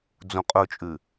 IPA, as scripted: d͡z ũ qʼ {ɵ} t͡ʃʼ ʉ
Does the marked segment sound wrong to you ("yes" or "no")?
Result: no